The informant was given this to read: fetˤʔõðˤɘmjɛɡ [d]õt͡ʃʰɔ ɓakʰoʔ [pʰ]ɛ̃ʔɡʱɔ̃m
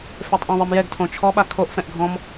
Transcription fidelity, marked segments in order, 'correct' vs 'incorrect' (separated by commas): incorrect, incorrect